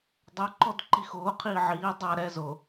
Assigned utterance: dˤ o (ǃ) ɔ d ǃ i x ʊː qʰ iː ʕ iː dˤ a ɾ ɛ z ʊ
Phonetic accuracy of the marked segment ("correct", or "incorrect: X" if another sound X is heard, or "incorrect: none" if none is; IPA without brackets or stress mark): correct